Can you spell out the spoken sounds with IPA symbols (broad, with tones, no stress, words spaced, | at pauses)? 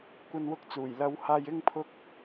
kʷɐ˧nwʊ˧k̚t͡suː˨˩j lɐ˨˧whaː˧j ɪ˧ŋpʰʊ˧k̚